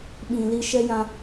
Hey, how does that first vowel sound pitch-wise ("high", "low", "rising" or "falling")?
low